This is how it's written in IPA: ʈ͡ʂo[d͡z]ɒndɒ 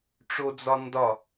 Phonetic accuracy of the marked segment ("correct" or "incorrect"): correct